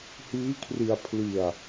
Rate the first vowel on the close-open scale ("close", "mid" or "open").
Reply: close